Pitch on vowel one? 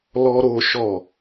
high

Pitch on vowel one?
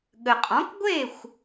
low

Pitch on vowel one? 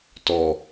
low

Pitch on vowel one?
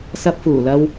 high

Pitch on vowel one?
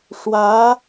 rising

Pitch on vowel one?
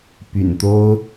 low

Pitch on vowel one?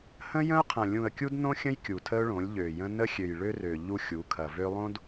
high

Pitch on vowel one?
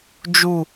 falling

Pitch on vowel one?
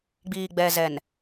low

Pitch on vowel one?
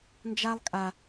high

